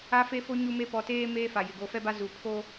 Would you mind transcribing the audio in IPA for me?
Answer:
a˦ f e˦ f o˦ ɲ u˦ m e˦ p ɔ˨ t eː˦ m eː˦ f a˨ j ɪ˨ ɡ o˦ f ɛ˦ b a˦ z u˨ pʰ o˦

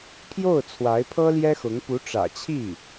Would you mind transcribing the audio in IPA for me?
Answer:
pʰ j o˥˩ ʊ̯ t͡sʰ w a˧˥ ɪ̯ pʰ ɤ˥ l j ɛ˥ x ʊ˧˥ ŋ p u˧˥ ʈ͡ʂ ä̰˨˩ t͡ɕʰ i˥˩

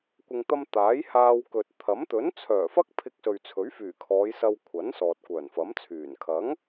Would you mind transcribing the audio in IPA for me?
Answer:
kʷ ɪ˨ ŋ t̪ ɐ˧ m t̪ aː˨˥ j h aː˧ w k ɵ˨ t̚ t̪ʰ ɐ˨˥ m t̪ ɵ˨˥ n t͡sʰ œː˨˩ f ɐ˥ k̚ pʰ ɪ˧ k̚ s ɵ˨ ɥ t͡sʰ ɵ˨˥ ɥ f yː˨˩ kʰ ɔː˨˧ j s ɐ˧ w kʷʰ ɐ˨˥ n s ɔː˨ t̚ kʷ œː˨˩ n f ɐ˨˥ m t͡sʰ yː˨˩ n kʰ ɐ˨˥ ŋ

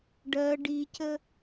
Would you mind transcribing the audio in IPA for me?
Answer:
ɖ ɜ ɖ i c ə

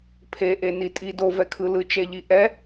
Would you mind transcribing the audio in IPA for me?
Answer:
pʰ e ʔ e n i tʼ i d o v ɛ kʰ ɯ l ɯ t͡ʃ ɛ ʎ i ʔ ɛ

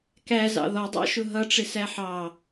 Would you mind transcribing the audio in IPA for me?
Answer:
k æ z ɑ̰ ð ɔ dˤ ɑ̰ ʃ ʊ ɦ ʌ ʈ͡ʂ ɪ s æ ħ ɑ

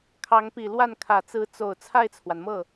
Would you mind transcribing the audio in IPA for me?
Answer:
kʰ ɑ˧˥ ŋ p i˨˩ l w a˥˩ n kʰ ä˨˩ t͡s ɹ̩˧˥ t͡s o˨˩ ʊ̯ t͡sʰ a˥˩ ɪ̯ t͡sʰ w a˩ n m ɤ˥˩

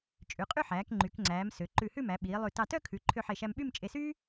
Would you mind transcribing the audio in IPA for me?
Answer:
t͡ʃʼ ʉ˩˧ qʼ y˥˧ ħ æː˩˧ k ŋ͡ǃ y˩˧ k ŋ͡ǀ æː˩˧ m s ø˩˧ ǃ ʉ˧˩ h ʉ˥˧ m æ˩˧ ɓ iː˩˧ lˠ ʉ˧˩ t ɑ˧˩ t œ˥˧ kʰ ʉ˩˧ ǃʰ ø˧ ħ e˧˩ ʃ æ˧ m ɓ y˥˧ m t͡ʃʼ e˧ s yː˥

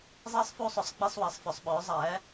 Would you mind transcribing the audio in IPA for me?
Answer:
zˤ iː˥˧ sˤ f u˥˧ sˤ ɵ˩˥ sˤ ɡ͡b i˥˧ sˤ w æ˩˥ sˤ f œ˩˥ sˤ ɓ ɵː˩˥ zˤ æː˩˥

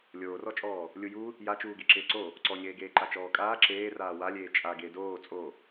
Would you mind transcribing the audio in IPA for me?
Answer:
lʲ oː r ɔ t͡ʃʼ ɔː | lʲ u j u | j a t͡ʃ uː ɡ e ǁ ɪː ǀ o | ǀ ɔ ɲ eː ɡ eː ǃ a t͡ʃ ɔː kʼ aː ǁ eː r aː w a lʲ eː t͡ʃʼ a ɡ e d oː t͡sʼ o

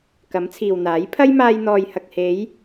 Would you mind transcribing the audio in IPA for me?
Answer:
k ɐ˨˥ m t͡sʰ iː˨ w n̪ aː˨˥ j pʰ ɐ˥ j m aː˧ j n̪ ɔː˨ j h ɐ˨ k̚ h e˨˧ j

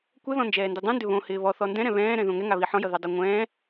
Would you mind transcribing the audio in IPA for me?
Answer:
kʷ ɛ ð ɔ̃ n d͡ʒ ɛː n d i dˤ ũ n d ʏ β õ h ɪː β ɔ θ ɔ n d ɛ̃ ɾ ɛ̃ β ɛ̃ː ɾ ɛ̃ ð õ ŋ ɛ ŋ a β i ħ ɔ̃ j ʌ ð ɛ dˤ a ŋʷ ɛ̃ː

